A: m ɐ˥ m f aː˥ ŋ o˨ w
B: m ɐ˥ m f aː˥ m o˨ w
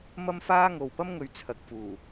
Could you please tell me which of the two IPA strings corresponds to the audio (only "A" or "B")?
A